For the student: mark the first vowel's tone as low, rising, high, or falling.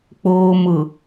low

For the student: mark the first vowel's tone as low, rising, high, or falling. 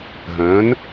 rising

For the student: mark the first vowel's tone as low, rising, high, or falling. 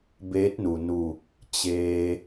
rising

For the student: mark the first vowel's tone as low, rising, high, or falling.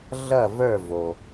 falling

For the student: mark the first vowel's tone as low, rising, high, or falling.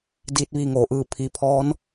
rising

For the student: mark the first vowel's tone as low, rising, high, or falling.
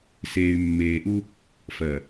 low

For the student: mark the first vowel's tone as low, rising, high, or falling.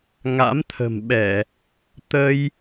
rising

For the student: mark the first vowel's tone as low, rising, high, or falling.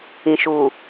low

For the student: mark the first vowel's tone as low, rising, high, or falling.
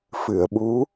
low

